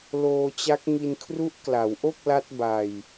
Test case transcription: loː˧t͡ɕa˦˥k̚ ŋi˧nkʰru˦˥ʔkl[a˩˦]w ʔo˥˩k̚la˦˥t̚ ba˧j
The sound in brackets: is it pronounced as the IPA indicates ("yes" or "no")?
yes